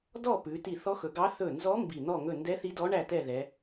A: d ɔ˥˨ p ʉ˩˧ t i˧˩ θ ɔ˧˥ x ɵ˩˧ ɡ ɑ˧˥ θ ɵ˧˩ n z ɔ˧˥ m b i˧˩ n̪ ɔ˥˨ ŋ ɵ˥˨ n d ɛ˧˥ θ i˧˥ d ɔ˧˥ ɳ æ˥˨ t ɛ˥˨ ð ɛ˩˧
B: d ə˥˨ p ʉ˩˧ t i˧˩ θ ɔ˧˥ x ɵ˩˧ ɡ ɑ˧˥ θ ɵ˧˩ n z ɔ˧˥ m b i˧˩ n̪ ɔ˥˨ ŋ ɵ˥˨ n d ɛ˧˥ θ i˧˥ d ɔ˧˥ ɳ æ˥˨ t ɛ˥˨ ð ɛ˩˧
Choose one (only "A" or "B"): A